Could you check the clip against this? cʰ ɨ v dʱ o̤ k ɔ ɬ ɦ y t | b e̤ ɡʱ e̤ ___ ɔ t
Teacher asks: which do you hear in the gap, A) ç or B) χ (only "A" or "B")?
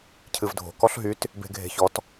A